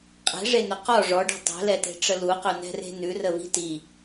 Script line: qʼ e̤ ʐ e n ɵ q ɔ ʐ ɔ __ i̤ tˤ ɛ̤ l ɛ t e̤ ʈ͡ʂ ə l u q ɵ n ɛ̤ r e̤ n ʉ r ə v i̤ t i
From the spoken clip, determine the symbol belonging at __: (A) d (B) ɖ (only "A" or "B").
B